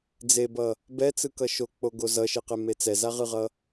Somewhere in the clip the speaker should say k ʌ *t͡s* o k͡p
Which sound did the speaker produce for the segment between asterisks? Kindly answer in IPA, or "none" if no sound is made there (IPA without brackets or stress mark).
ʃ